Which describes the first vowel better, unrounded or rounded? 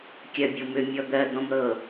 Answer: unrounded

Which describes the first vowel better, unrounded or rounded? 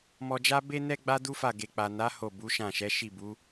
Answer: rounded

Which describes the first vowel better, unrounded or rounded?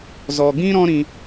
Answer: rounded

